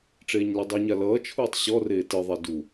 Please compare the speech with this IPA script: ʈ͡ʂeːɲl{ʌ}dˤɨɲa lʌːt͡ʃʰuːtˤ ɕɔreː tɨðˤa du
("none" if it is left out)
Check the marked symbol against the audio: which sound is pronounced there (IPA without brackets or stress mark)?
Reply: ʌ